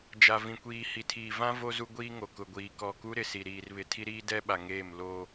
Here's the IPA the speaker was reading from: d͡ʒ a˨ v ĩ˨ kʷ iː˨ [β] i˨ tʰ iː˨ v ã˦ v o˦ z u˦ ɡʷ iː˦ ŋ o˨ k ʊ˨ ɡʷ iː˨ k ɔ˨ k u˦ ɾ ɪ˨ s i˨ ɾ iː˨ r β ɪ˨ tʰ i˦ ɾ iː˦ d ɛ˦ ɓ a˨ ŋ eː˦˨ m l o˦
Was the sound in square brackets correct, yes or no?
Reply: no